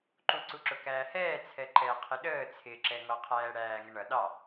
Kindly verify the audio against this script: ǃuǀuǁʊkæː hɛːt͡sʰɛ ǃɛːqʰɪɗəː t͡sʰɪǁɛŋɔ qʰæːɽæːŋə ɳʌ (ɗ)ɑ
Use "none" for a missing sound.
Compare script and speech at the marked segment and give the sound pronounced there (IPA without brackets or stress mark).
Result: ɗ